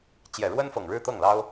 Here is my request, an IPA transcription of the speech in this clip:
t͡ɕ j ɛ˨˩ ɻ w ə˥ n f ɤ˨˩ ŋ ɻ ɻ̩˥˧ t̪ ɤ˥˩ ŋ l ɑ˥ ʊ̯

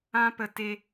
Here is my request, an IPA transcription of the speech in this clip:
ã˦ p ə˧ t e˦

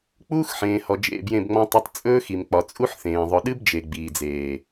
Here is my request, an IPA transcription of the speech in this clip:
k͡p uː˦ x ħ ẽː˨ h ɔ˨ d͡ʒ ḛ˦˨ b j ẽ˦˨ b ŋ͡m ɔ̃˦ tˤ ɨ˦ tˤ t͡sʼ ɵː˦ x i˨ m k͡p ɒ˨ t͡sʼ u˦ ħ θ ẽː˨ ðˤ ʊ˨ ɗ ɨ˦ b d͡ʒ e˨ ɡ͡b iː˨ d͡z eː˨

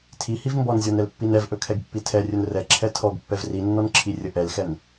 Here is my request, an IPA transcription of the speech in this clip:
tʰ i h i v m b ɔ n zʲ ɔ n ɛ l pː i n ɛ v ʔ ɵ kʰ ɛ ɡ pː i tʰ ɛ rʲ ɵ n r ɛ ǁʰ ɛ tʰ ɔ ɡ pː ɛ v r i nː ɔ n ǁʰ i rʲ ə ʔ ɛ l x ɛ n

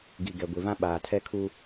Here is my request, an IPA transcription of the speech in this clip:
ɡ i˨ ɡ ɛ˨ ɡʷ i˨ v ã˦ ɓ aː˨ tʰ ɛ˦ kʰ u˦

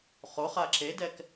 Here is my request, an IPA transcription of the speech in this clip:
χ o χ a ǁ e d ɛ k

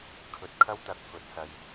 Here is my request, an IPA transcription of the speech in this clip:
kʰ ɵ˨ t̚ kʰ ɐ˥ w t̪ ɐ˨˥ k̚ f ɵ˨˥ t̚ s ɐ˧ j

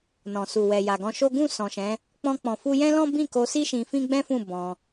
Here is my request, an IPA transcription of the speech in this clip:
n ɔ̃˨ s u˨ w ɛ˨ j a˨ ɡ ɔ̃˧ ʃ o˦ ɡ ũ˦˨ s ɔ̃˨ ʃ ɛ̃˨˦ | k͡p ɔ̃˧ k͡p ɔ̃˨ f u˧ j ɛ̃˦ l ɔ̃˦ b ĩ˦˨ k o˧ s i˦ ʃ ĩ˧ f ĩ˦ ɡ͡b ɛ̃˦ f ũ˦˨ b ɔ̃˧

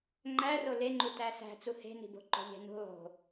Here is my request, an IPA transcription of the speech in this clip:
ŋ͡ǃ æ r o l e ŋ͡ǃ u t æ s æ̤ t͡s u h e̤ n i̤ b o̤ ǃ o̤ ʎ e̤ n ṳ lˠ o̤

